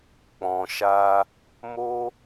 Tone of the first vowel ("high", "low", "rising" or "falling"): low